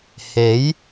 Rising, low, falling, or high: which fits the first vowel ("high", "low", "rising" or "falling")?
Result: rising